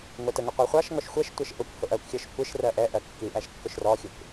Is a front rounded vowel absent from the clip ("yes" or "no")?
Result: yes